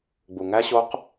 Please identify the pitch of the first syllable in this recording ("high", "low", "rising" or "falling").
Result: low